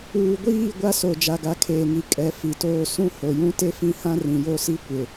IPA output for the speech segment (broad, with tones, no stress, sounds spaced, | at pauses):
uː˨ ɡʷ iː˦˨ ɡʷ a˦ s o˨ d͡ʒ a˨ ɡ a˨ kʰ eː˨ ŋ i˨ kʼ ɛ˨ f i˨ t oː˦ s ũ˦ h o˨ j ũ˦ t e˦ f ĩ˦ h ã˦ r ĩ˨ j o˦ s i˦ kʷ ɪ˨